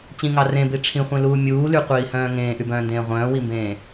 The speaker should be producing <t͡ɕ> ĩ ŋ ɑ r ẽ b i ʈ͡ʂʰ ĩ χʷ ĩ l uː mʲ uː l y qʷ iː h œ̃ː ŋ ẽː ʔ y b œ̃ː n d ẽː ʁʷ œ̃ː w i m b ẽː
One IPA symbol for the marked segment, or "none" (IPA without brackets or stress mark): t͡ɕ